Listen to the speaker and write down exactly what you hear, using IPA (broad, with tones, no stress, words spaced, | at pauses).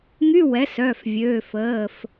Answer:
ŋy˧˥˧wɛ˩˥sœ˩˧˩fvʲø˩˧˩ fəː˩˧˩f